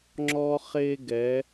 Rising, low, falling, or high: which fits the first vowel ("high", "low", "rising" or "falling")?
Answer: high